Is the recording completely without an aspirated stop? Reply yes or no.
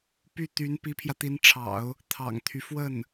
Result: no